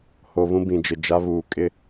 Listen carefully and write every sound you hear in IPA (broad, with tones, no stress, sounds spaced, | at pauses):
h o˨ β ũ˦ b ĩ˨ d͡ʒ ɪ˨ d͡ʒ a˦ β uː˨ kʼ ɪ˦